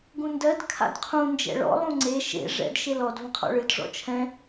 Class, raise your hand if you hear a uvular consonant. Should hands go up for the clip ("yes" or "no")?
yes